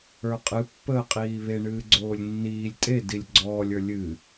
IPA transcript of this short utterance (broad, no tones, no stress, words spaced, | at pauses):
ə˞qʼɨpːəːqʼiː βeɳɨːɡ͡ǀoːlʲ nːiːlʲ tʼe dilʲɡ͡ǀɔːlʲə˞ lʲɨ